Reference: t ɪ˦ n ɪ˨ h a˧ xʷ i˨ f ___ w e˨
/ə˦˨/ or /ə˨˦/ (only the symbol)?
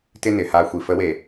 ə˨˦